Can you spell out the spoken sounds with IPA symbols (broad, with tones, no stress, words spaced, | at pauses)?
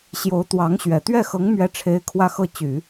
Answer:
ɕjo˧˥ʊ̯t̪wɑ˧˥ŋɕɥɛ˨˩ t̪ɥɛ˥˩xɤ˧˥ŋ mɥɛ˥ʈ͡ʂʰe˥ɪ̯ kʰwä˥˧xɤ˥˩t͡ɕy˨˩˦